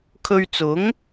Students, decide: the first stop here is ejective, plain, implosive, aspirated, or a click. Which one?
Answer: aspirated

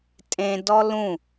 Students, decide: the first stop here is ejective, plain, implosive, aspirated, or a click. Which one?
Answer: ejective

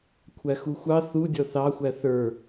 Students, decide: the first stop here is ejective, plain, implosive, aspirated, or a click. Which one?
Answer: aspirated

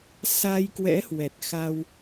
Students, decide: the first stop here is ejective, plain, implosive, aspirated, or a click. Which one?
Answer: plain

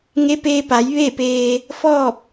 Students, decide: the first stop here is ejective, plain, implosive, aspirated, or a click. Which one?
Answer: plain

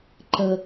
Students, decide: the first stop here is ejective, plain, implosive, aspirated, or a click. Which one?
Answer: click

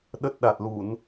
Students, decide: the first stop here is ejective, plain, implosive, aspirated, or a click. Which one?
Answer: implosive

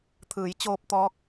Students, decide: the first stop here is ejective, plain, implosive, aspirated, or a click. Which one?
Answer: aspirated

